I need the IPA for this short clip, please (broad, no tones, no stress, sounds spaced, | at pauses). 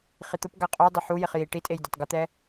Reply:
χ i t̪ ʊ p ɡ a qʼ ʊ j dˤ ɪ ħ u j ɪ χ j i ʈ i tʼ e j dʲ ɔ tˤ ɡ ʊ t̪ ɛ